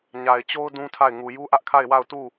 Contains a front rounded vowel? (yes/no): no